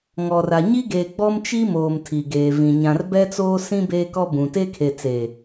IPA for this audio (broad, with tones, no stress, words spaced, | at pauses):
ŋɔ˨ra˨ ɲi˦ɡe˨ɡ͡bɔ˦m t͡ʃi˦moː˨m tʰi˨ɡeː˨vĩ˨ ɲã˨rbɛ˦t͡soː˦sĩ˦ beː˦kɔ˦bũ˨ te˦kʰe˨t͡seː˨